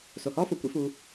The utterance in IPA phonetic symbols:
s o˨ h ɔː˦ f o˨ kʷ ḭ˧ f uː˧

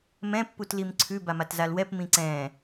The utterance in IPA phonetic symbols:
m ɛ̃ pː u t l i m ǀʰ ʉ b a m a t z a l w ɛ p m ĩ ǀ ɛ̃ː

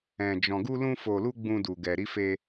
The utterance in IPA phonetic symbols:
ɛ̃˧ d͡ʒ ɔ̃˧ ɡ u˦ l ũ˦ f o˧ l u˦ ɡ͡b ũ˦ d u˧ ɡ ɛ˧ ɾ i˦ f e˦

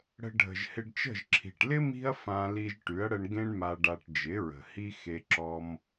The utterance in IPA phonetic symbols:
ɽ ə̤˧ ɖʱ ə̤˨ ʒ h ɪ˧ ɖ t͡ʃ ə̤˦˨ ʒ ǁʰ i̤˨ ʈ l ɪ˦ m i̤˦ ɐ̯ f ã˧ l i˧ ʒ ʈ y˨˦ ɐ̯ ɽ ə˧ ɳ ɡ ẽ˦ ɳ m a˧ ɖ a˧ ʈ d͡ʒ ɪ˨˦ ɹ ə̤˨ h i˦ x e˧ ǁ ɔ˦ m

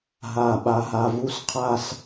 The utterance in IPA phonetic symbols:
ɦ a˧˩ ɓ a˧ ɦ a˧ v u˥˧ s qʰ a˥˧ s

